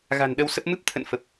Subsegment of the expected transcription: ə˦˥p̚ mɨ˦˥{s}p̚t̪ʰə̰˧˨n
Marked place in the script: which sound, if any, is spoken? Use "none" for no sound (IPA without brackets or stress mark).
none